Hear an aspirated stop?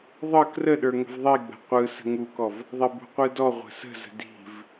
no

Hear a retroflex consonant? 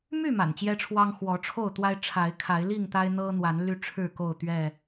yes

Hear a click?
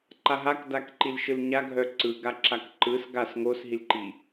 yes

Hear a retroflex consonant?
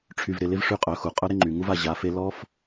yes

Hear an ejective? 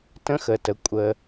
yes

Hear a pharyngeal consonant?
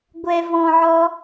yes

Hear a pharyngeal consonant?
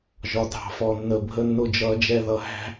no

